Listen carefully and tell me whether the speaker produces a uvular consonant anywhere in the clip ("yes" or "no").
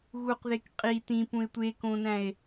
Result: yes